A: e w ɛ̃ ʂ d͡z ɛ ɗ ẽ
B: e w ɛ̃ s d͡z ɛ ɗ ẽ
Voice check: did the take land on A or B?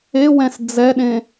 B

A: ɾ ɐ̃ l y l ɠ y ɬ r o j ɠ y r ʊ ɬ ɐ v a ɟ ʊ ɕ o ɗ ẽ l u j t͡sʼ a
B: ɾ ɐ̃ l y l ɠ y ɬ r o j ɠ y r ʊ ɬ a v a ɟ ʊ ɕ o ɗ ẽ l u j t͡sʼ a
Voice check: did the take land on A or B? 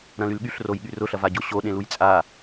A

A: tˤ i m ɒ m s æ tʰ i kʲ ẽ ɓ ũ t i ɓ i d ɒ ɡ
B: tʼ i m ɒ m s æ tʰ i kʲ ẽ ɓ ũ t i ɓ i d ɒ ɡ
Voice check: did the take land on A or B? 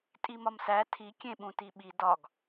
B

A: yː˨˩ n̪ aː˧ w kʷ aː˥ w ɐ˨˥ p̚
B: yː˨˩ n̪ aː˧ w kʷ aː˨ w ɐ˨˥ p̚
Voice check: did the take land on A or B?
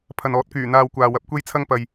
B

